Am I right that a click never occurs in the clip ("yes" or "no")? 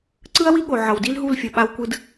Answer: no